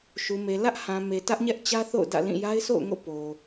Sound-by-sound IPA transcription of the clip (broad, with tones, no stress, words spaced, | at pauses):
ʃu˨me˨ lä˦ʔhã˨me˨ tä˦ʔɲɛ˦ʔt͡ɕä˦ θo̰˦˨ʊ̯ dä̰˦˨lĩ˦˨ ja˦ɪ̯so̰˦˨ʊ̯ŋo̰˦˨ po˨